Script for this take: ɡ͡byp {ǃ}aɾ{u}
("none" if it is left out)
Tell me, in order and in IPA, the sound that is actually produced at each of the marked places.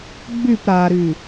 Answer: ɾ, y

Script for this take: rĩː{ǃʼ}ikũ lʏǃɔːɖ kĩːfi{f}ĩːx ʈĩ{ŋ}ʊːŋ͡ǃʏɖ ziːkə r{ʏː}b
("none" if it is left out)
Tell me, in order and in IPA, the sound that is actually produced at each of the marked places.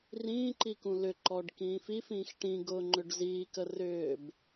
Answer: ǃ, f, ɡ, ʏː

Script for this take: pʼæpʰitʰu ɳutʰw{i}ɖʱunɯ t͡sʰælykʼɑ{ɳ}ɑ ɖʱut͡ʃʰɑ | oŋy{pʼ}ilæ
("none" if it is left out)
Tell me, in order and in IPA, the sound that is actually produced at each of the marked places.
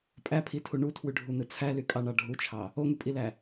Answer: y, ɳ, pʼ

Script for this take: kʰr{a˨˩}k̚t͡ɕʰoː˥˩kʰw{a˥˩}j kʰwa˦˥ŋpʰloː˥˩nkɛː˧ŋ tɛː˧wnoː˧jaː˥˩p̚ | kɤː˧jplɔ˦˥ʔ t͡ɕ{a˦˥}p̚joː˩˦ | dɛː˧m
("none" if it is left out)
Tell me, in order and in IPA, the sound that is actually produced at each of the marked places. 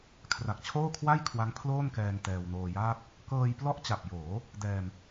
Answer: a˨˩, a˥˩, a˨˩

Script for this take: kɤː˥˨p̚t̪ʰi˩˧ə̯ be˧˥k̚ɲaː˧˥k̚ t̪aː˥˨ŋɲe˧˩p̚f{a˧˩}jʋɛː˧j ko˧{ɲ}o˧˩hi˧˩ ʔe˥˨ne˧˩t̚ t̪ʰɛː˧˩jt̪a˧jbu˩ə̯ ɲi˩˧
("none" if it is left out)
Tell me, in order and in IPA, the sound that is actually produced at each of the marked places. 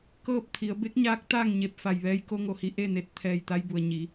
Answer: a˧˩, ŋ

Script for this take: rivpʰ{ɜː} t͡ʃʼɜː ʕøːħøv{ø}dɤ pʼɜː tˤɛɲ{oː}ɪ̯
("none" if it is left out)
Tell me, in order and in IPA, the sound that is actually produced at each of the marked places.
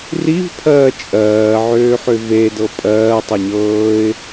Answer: ɜː, e, ɤː

